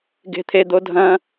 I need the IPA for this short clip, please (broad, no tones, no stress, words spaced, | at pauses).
ɡe̤t̪ʰed̪o dʱɐ̃